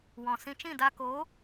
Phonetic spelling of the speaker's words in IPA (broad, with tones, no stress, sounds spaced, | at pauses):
w ɔ̃˨ s ĩ˧ t͡ʃ ĩ˦˨ d a˧ k oː˨˦